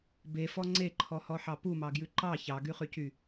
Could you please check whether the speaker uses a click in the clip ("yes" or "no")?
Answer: yes